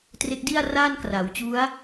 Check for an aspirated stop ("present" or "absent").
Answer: absent